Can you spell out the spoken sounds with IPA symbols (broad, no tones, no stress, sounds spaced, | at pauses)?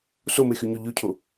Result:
s o m e x y ɲ o ʎ ʉ cʰ o